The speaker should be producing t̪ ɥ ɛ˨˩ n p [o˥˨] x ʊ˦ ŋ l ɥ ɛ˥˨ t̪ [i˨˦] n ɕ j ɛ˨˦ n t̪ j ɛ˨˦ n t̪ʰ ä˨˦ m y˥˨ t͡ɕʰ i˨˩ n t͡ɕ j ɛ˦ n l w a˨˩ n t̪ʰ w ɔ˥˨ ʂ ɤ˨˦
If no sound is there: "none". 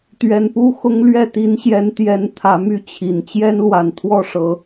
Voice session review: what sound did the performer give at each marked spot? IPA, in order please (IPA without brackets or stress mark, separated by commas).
u˥˨, i˨˦